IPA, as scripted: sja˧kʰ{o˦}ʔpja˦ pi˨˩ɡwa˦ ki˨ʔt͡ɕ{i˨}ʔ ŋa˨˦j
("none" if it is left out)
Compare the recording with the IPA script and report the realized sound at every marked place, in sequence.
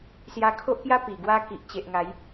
o˦, e˨

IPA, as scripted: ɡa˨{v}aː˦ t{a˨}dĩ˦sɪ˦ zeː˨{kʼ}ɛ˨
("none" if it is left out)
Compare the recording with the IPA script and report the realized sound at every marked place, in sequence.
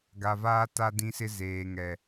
v, a˦, ŋ

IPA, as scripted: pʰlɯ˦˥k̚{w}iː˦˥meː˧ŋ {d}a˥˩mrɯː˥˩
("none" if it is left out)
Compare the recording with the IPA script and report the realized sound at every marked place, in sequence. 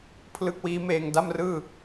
w, d

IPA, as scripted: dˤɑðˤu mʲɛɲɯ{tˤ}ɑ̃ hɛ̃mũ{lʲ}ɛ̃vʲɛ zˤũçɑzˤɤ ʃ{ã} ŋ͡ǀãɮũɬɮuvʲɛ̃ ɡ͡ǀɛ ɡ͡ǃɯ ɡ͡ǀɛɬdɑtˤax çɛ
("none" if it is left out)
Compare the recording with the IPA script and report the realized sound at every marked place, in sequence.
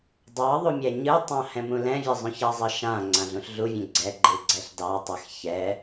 tˤ, l, ã

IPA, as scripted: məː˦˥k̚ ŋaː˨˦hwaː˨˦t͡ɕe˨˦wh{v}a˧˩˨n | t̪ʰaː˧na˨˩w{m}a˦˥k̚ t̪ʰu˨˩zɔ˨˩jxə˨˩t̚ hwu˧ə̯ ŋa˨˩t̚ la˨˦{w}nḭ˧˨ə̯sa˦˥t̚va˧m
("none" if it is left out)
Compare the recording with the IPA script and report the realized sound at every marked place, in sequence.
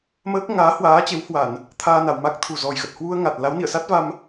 w, m, w

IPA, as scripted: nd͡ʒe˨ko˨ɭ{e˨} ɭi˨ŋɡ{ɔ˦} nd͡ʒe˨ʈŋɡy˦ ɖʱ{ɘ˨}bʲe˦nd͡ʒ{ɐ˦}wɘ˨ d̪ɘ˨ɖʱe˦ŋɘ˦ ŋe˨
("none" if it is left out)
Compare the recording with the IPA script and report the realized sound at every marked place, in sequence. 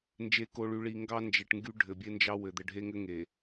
y˨, ɑ˦, ɘ˨, ɑ˦

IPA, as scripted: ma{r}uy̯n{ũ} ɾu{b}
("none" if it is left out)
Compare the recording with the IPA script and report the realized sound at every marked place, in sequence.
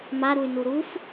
ɾ, u, f

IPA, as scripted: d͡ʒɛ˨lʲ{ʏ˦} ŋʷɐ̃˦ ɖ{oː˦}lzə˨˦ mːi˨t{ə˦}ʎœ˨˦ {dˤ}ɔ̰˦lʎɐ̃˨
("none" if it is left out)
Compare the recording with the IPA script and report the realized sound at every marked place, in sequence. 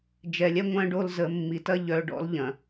ɛ˦, o˦, ɐ˦, ɖ

